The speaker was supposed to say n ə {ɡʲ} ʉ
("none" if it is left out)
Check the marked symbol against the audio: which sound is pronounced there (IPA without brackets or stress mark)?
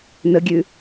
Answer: ɡʲ